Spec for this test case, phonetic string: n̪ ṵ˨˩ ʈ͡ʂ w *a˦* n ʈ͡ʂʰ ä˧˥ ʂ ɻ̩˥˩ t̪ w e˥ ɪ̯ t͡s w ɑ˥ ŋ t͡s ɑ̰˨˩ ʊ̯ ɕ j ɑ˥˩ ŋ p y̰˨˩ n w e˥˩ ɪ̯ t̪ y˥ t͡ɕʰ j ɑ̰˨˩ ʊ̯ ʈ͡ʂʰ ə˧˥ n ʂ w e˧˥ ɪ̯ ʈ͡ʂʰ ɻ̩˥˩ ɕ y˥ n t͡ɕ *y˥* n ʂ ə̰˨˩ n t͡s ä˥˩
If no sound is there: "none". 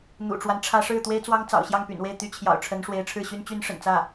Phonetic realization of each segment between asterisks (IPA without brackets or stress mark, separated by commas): a˦, y˥